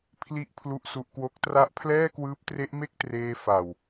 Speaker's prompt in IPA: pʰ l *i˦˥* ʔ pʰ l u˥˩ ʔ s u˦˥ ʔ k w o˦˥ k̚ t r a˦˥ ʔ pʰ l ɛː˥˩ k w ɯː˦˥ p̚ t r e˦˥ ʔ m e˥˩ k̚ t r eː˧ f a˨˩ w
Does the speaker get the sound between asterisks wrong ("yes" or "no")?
no